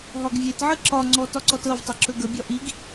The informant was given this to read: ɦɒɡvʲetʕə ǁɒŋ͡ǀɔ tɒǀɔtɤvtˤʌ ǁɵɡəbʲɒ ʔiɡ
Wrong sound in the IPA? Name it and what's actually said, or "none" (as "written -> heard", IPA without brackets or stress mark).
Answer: none